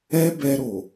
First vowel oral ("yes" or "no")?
yes